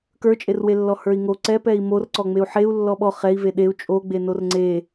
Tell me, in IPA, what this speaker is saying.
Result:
k ə˞ t͡ʃʼ e r w e lː ɔ h ə˞ i̯ ŋ o ǀ ɛ p ɛ i̯ m o r ǀ ɔ ŋ͡m e u̯ ħ e u̯ lː ɔ ɓ ɔ χ ɛ i̯ v e ɗ e u̯ t͡ʃʼ o ɡ͡b e n o r ŋ͡ǀ e

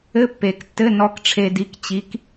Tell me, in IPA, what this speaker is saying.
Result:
ɘ˧˥˧ pː e˨˩˦ k tː ɘ˧˥˧ n ɔ˧˥ k ʈ͡ʂʰ e˧ d i˧˥ k t͡ɕ i˧˥ k

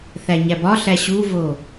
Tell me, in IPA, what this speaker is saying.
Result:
θ æ ɲ æ b ɒ ɬ æ ɕ u v o

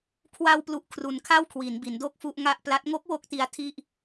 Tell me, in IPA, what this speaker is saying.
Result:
kʰ w a˧ w p l u˨˩ ʔ kʰ r u˩˦ n kʰ a˥˩ w kʰ w i˩˦ n b i˩˦ n d o˥˩ k̚ f u˥˩ ʔ ŋ a˥˩ ʔ p l a˦˥ t̚ ŋ o˦˥ k̚ w o˥˩ k̚ t i˧ a̯ tʰ i˥˩ ʔ

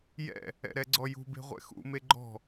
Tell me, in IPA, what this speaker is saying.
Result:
j ɛ̰ | ɛ̰ ɾ ɛ ɡ͡ǀ ɔ j ṳ b e̤ ʁʷ ɛ̰ x ṵ m e ɡ͡ǃ ɔ̤

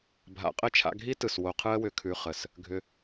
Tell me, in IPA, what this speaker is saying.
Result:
bʱ a̰˨ qʼ ɘ˦˨ t͡ʃʰ a̰˧ ɡʱ i˦ t ɯ˨ s w o˧ qʰ ɯ˦ ə̯ w ʏ˧ kʰ ʉ˧ χ ə˨ s | ɡʱ ʏ˧

